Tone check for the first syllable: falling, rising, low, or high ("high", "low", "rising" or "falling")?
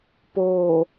low